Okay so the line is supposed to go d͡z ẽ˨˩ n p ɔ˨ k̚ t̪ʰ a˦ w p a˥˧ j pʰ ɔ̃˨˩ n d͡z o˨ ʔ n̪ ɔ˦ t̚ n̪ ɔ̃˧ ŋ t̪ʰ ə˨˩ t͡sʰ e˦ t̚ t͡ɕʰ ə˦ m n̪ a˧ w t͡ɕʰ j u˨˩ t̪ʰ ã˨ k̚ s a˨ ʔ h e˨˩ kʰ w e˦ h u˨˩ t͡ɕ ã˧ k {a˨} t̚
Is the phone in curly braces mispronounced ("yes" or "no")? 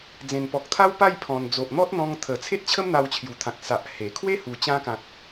yes